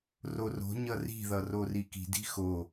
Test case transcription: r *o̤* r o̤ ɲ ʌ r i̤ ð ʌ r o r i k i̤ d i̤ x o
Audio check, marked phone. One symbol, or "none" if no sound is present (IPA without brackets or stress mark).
o